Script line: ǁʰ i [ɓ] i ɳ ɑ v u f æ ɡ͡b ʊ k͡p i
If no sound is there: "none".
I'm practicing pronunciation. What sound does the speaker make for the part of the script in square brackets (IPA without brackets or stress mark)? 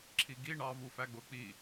ɡ